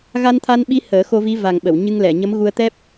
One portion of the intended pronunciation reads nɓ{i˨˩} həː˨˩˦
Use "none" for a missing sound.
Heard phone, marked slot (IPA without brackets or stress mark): i˧˥